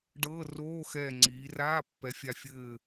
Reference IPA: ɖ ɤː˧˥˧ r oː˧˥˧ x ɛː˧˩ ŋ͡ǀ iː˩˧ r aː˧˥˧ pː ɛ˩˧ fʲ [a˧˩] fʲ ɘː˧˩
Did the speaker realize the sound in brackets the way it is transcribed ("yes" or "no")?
yes